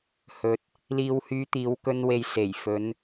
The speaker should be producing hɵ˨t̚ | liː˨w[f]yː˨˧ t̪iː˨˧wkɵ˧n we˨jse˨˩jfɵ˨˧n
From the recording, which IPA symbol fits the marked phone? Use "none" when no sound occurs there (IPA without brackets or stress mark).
h